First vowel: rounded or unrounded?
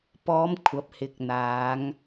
rounded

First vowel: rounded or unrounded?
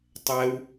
unrounded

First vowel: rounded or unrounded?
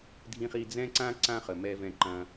unrounded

